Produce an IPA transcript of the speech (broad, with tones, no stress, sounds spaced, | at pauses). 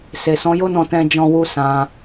s e˨ s ɔ̃˨˦ j o˦ n ɔ̃˧ t ɛ̃˦ d͡ʒ ɔ̃˦ w u˦ s ã˧